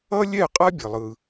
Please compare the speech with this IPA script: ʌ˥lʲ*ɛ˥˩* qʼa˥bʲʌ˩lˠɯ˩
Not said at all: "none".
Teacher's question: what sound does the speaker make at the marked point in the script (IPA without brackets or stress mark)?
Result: ɛ˥˩